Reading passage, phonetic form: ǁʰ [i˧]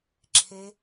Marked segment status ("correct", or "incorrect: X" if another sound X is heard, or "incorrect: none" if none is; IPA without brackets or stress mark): incorrect: e˧